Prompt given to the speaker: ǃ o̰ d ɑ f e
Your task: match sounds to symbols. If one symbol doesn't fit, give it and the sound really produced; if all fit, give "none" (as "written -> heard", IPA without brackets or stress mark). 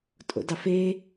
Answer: ǃ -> tʼ